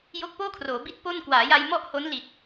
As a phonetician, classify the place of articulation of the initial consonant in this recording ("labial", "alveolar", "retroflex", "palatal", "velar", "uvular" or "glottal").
palatal